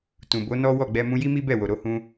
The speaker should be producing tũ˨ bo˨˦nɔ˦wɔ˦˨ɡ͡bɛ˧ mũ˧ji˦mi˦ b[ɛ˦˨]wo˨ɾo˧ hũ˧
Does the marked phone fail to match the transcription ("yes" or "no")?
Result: no